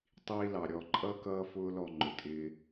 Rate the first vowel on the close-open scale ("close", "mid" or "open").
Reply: close